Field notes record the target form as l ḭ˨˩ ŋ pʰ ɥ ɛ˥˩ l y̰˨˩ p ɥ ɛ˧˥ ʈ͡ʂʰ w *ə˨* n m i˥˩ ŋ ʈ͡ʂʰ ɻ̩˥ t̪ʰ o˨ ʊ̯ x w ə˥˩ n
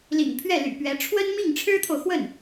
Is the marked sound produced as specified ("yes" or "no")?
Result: no